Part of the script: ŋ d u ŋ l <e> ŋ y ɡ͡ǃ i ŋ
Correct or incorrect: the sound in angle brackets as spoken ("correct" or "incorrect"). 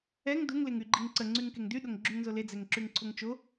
correct